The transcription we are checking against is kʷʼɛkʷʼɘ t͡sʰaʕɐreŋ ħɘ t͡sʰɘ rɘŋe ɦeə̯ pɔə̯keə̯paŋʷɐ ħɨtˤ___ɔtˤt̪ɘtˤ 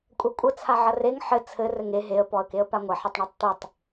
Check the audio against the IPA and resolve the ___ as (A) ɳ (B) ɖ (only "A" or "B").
A